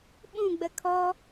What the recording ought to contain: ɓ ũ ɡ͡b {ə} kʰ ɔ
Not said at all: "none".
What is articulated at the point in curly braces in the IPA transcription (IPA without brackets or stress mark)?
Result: ə